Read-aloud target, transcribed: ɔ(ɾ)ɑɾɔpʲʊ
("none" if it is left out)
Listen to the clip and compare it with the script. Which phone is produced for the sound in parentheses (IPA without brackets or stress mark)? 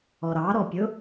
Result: ɾ